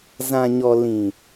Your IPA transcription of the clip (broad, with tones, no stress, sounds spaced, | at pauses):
z ã˨ ɲ ɔ˨ l ĩ˨